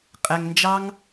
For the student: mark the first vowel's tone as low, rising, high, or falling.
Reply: low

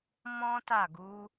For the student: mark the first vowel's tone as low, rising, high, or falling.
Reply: high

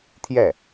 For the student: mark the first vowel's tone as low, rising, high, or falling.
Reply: falling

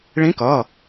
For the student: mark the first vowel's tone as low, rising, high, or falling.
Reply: rising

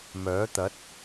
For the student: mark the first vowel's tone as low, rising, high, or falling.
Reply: rising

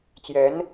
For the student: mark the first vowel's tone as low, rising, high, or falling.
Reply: rising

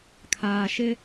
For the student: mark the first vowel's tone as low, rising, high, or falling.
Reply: low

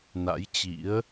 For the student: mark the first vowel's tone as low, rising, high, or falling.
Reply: rising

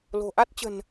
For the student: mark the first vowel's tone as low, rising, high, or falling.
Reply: low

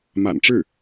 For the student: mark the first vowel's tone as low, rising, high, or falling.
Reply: low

